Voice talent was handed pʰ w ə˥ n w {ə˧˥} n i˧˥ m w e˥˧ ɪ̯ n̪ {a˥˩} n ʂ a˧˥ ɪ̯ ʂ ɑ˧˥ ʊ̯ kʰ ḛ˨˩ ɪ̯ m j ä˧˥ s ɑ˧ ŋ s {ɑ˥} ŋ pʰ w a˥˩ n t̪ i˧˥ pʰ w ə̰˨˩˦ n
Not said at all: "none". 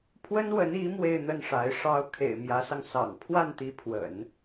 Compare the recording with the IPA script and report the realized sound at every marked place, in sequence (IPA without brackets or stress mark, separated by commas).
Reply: ə˧˥, ə˥˩, ɑ̰˨˩